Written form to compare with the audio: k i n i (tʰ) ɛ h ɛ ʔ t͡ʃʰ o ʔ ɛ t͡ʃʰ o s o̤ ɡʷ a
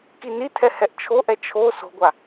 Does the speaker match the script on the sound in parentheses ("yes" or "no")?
yes